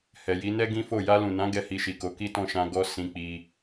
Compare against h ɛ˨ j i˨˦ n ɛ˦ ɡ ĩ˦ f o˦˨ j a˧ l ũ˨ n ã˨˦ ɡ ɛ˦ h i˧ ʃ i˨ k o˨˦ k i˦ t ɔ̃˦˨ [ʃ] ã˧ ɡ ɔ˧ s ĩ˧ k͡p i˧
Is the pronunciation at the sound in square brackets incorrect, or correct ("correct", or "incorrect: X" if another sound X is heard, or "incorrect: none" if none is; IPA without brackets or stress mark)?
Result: correct